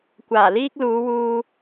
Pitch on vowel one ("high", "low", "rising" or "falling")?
low